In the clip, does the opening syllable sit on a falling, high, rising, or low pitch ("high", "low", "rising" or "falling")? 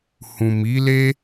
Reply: low